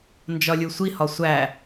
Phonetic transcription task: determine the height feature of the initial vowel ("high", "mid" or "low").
low